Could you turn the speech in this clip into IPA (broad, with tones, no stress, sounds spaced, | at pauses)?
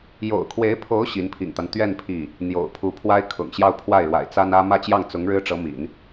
j o̰˨˩ ʊ̯ kʰ w e˧˥ ɪ̯ pʰ o˧˥ ʊ̯ ɕ i˧˥ n pʰ ḭ˨˩ ŋ t̪ a˦ n t̪ ɥ ɛ˥˧ n pʰ i˥˩ | n̪ j o̰˨˩ ʊ̯ pʰ u˧˥ pʰ w a˥ ɪ̯ kʰ ʊ̰˨˩ ŋ ɕ j ɑ˥˧ ʊ̯ pʰ w a˥˩ ɪ̯ ɻ w a̰˨˩ ɪ̯ t͡s a˥ n ä˥ m ä˥˧ t͡ɕ j ɑ˥˩ ŋ t͡s ʊ˧˥ ŋ ɻ ɻ̩˥ ʈ͡ʂ ɤ˧˥ m ḭ˨˩˦ n